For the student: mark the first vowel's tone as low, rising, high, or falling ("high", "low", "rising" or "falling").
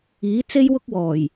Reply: rising